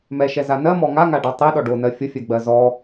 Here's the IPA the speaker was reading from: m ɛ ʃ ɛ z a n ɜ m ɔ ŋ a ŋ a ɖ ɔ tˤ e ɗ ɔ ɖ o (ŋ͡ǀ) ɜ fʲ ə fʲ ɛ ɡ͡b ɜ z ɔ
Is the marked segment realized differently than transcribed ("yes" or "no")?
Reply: yes